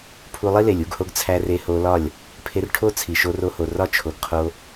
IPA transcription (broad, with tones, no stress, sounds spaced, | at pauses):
pʰ u˧ lˠ i˦ l e˨ lʲ u˧ ɡ h o˧ ɡ t͡sʰ æ˧ r e˧ h o˧ l ɒ˦˨ lʲ | pʰ e˧ r ʈʰ o˦ t͡sʰ i˨ ʃ o˧ r o˧ h o˨ r ɒ˦ t͡ʃʰ o˨ ɡ qʰ o˧